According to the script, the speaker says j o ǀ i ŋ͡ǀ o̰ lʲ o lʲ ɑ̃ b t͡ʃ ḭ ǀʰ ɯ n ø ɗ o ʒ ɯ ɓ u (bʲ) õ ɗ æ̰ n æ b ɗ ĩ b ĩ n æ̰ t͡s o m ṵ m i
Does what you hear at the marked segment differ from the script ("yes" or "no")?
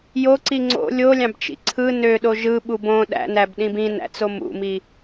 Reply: yes